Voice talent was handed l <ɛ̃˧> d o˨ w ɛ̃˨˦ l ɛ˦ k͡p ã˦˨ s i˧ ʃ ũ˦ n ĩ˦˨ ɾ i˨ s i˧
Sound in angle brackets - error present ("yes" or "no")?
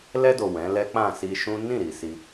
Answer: yes